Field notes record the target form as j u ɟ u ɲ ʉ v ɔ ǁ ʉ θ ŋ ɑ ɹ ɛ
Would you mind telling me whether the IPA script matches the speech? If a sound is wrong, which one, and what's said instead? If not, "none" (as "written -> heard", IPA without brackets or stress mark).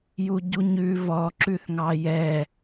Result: ɹ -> j